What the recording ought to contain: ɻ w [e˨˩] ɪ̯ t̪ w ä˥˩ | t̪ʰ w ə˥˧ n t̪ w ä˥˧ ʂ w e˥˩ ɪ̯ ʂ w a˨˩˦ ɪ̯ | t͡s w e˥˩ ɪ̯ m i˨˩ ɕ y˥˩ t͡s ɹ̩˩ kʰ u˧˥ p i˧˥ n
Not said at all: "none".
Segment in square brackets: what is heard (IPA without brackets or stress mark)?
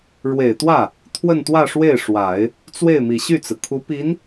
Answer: e˨˩